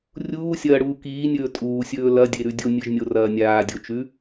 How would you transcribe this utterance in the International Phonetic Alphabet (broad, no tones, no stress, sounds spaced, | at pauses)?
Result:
rʲ uː sʲ ɐː ɽ uː k iː nʲ ɵː tʼ uː sʲ ɵː l ɐ dʲ e ɾ ʉ dʲ o nʲ ɨ ʒ nʲ o r ɐː nʲ aː dʲ o t͡ʃ ʉ